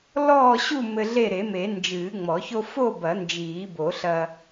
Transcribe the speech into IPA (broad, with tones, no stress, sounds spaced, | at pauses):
l ɔː˥˨ ɕ u˥˨ m ɘ˦ ɮ e˥˨ ɾ e˨˩˦ m e˨˩˦ n d͡ʒ ɨː˨˩˦ ŋ͡m ɔ˨˩˦ ç o˦ f o˥˨ b ɐ˨˩˦ n d͡ʒ iː˨˩˦ b o˨˩˦ ɬ ɐ˦